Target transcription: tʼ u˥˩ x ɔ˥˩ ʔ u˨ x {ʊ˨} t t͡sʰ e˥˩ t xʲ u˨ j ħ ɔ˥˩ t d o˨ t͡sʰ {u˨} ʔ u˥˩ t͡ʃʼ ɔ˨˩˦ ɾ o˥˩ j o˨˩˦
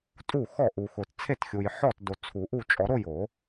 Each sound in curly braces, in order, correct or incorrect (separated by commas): correct, incorrect